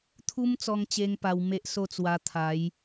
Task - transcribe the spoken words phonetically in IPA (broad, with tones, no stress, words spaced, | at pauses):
t̪ʰu˦mt͡sɔ˧ŋt͡ɕe˧ŋ pa˧wme˦ʔso˥˧t͡swa˧ t̪ʰa˨˦j